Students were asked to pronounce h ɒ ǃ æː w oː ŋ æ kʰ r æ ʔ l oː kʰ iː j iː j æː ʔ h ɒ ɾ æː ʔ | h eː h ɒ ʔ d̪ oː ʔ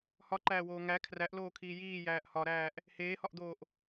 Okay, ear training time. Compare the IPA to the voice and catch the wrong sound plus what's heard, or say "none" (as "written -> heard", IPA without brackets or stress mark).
none